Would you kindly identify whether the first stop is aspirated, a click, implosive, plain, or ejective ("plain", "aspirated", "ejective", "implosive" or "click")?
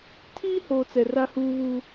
aspirated